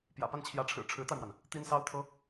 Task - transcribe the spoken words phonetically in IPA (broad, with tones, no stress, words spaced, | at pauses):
pjä̰˨˩pa˥˩nt͡ɕʰjä˧˥ʈ͡ʂʰɻ̩˨˩ ʈ͡ʂʰɻ̩˧˥t̪a˧ɪ̯mwa˩n | t̪i˥nsɑ˥ʊ̯t̪ʰɤ˥